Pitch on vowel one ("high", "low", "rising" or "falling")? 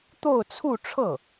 falling